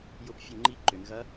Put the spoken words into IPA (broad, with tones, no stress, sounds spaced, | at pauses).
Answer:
j ʊ˥˨ p fʲ ʊ˥˨ ŋ͡ǃ i˧˥ ǃ ʏ˩˧ n ɣ ɐ˧˥